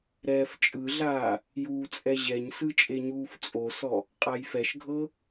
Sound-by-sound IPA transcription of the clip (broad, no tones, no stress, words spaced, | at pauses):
ɾɛːft͡ʃʼɯɮaː | juːt͡sʼɛʑɛɲsɯ t͡ʃʼeɲuːft͡sʼosɔ | qʼajfɛʃɡʱɤ